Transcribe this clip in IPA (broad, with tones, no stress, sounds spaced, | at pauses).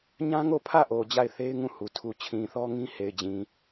ɲ ã˦ ŋ o˦˨ pʰ ä˦˨ ʔ o˨ d͡ʑ a˦˨ ɪ̯ θ e˦ ɪ̯ ŋ ũ˦˨ h u˨ tʰ u˨ t͡ɕʰ ĩ˨ θ ɔ˦ ŋ ĩ˦ h e˨ ɪ̯ d͡ʑ ĩ˨